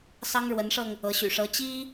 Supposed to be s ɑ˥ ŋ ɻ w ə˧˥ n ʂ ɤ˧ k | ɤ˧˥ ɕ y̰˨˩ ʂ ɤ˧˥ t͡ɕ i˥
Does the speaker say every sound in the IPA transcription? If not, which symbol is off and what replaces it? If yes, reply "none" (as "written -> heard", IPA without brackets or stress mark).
k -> ŋ